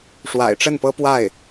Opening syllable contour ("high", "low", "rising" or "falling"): low